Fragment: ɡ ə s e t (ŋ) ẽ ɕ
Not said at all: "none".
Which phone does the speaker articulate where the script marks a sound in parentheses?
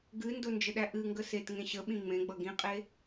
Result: ŋ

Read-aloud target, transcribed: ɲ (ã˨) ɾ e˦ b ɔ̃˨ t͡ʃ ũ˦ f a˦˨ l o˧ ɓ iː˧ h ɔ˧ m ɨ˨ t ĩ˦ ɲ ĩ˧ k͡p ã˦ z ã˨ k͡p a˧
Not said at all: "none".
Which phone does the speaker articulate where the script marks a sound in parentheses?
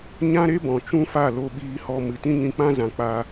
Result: ã˦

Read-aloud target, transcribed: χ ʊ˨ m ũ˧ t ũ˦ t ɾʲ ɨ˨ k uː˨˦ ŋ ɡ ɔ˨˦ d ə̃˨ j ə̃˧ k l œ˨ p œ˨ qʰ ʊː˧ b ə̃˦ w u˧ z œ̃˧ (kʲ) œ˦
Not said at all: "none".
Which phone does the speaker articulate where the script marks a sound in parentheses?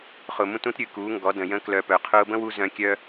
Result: kʲ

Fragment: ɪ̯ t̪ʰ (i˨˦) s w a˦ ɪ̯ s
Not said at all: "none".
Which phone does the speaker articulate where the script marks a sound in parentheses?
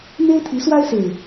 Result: i˨˦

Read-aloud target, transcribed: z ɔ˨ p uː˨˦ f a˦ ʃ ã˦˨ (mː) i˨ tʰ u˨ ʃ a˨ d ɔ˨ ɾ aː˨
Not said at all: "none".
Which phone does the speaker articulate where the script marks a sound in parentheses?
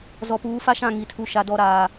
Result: ŋ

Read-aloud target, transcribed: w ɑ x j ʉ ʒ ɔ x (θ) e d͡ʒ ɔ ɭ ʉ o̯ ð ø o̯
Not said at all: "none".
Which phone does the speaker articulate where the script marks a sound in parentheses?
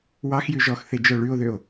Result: θ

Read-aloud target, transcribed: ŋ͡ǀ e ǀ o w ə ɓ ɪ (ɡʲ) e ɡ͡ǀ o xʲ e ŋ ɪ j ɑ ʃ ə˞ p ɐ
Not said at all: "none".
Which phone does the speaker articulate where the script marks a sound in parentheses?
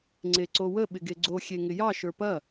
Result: ɡ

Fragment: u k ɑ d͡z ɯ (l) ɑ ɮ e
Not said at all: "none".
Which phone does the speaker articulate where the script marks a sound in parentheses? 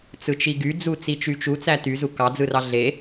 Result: r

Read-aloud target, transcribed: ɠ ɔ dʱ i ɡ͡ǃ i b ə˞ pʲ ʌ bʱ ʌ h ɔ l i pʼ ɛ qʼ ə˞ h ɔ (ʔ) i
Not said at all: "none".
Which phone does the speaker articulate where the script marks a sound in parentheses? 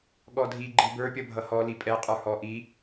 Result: ʔ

